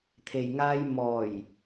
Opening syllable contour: low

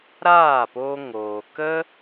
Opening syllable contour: falling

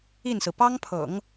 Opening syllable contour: falling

